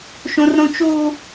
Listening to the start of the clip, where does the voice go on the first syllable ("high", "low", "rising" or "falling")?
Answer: high